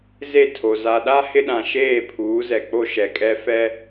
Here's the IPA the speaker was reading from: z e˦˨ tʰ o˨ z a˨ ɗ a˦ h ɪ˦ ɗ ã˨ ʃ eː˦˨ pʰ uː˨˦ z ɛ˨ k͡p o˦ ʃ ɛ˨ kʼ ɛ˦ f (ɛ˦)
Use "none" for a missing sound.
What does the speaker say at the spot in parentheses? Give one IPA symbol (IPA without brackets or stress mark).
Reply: ɛ˦